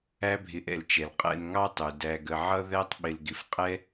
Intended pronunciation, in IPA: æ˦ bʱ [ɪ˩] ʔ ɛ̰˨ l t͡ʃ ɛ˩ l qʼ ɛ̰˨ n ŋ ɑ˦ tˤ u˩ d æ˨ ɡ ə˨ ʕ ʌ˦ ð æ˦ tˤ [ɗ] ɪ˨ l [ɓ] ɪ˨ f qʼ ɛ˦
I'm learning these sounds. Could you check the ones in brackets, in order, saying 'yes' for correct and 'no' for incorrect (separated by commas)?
no, no, no